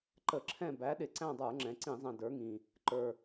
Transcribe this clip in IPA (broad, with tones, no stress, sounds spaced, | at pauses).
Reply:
ǃ ə˧˩˧ ǁʰ ɛ̃˦˨ b æ˨˥ ɗ ɪ˨˩ ǀ æ̃˦˨ dˤ ə˞˧˩˧ ŋ͡ǁ ɛ̃˩˧ ǀ ĩ˧˩˧ zˤ ɛ̃˨˩ d ə˞˨˥ ŋ ĩ˨˩ | ǃ ə˞˨˩